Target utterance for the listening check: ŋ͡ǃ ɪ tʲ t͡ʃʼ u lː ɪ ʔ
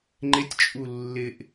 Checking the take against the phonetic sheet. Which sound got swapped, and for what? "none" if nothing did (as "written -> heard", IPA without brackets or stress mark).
none